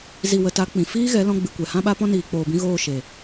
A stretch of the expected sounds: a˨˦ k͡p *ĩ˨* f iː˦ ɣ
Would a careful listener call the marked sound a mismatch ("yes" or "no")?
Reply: no